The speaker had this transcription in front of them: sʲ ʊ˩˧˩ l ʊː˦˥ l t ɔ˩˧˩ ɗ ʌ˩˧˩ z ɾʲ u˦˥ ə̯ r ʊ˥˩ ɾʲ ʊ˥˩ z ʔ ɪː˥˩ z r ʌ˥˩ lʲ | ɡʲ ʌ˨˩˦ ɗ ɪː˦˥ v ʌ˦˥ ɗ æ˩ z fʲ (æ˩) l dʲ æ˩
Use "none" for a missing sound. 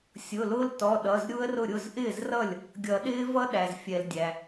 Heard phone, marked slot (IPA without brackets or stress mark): ɛ˩